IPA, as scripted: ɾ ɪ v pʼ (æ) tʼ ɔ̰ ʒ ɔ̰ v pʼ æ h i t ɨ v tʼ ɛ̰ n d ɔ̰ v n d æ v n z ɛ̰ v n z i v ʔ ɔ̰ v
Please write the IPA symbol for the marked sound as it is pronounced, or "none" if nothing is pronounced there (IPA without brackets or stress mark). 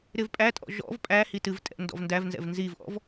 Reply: æ